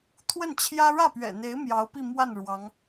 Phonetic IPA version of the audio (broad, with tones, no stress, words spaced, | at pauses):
t̪ʰwə˥˩nt͡ɕʰjä˥ ɻä˥˩pɥɛ̰˨˩n̪e˧˥ɪ̯ mjɑ˧˥ʊ̯pi˥˧mwa˥˩n ɻwɑ˧˥ŋ